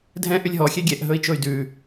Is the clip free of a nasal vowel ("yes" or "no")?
no